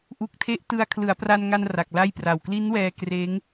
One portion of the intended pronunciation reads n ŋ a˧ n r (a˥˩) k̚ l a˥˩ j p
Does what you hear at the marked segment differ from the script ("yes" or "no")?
yes